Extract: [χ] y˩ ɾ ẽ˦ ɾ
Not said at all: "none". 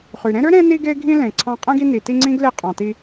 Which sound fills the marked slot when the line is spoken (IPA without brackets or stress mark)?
χ